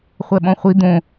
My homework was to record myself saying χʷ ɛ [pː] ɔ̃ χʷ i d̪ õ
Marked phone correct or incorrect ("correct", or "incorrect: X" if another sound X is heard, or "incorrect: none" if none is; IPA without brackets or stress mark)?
incorrect: ɓ